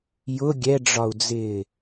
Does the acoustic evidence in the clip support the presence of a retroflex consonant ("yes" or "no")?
yes